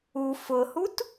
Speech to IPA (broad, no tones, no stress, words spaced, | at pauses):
u fʊhut